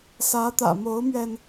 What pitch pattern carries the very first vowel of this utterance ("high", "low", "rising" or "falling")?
rising